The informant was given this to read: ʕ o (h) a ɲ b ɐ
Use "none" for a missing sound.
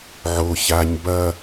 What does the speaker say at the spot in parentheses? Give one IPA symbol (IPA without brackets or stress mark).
ç